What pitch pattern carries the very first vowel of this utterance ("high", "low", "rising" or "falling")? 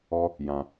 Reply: high